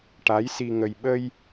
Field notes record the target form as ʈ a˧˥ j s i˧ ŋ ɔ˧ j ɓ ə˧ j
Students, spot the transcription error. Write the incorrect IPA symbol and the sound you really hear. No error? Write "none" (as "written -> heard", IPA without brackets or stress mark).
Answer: ɔ˧ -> ə˧